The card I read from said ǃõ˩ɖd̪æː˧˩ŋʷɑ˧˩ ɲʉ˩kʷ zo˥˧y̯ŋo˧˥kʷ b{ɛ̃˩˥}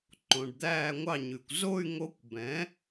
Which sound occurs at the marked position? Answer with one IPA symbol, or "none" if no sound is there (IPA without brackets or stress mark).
ɛ̃˩˥